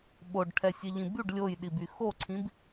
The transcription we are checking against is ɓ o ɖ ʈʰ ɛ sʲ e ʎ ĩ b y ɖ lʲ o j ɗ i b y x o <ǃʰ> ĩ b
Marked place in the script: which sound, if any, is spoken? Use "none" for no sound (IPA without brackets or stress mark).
ǀʰ